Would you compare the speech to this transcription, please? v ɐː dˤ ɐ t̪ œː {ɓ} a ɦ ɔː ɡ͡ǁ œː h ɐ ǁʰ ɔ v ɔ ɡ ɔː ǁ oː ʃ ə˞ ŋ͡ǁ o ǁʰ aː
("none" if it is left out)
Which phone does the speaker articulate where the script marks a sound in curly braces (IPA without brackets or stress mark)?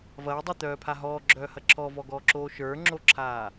pʰ